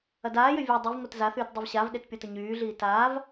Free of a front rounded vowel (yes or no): no